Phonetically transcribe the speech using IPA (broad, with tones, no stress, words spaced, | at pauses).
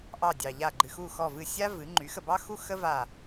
ʔɑ˦˨dʲɑ˨ʎa˦˨ ɡ͡ǃɨ˨xu˦˨xɔ˦˨vɨ˦˨ sʲa˥ vɨ˩˥ ŋ͡ǃy˩˥xə˨bɑ˥ xu˥ xə˥va˦˨